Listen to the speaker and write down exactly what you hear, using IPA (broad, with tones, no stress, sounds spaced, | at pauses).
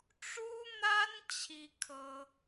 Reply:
ʈ͡ʂ u˥ n̪ a˥ n t͡ɕʰ i˥ kʰ ɤ˥